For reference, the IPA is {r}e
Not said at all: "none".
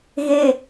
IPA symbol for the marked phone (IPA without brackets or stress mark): ɣ